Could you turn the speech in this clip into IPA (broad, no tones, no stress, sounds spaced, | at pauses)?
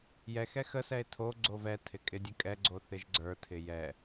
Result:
j ɛ x ɛ x ə s ɛ e̯ tʰ o ɡ͡ǀ o v ɛ tʰ ɪ kʼ ɪ dʲ ə kʼ ɛ ɡ͡ǀ o θ ɪ ʒ ɡ͡ǀ ə˞ tʰ ɪ j ɛ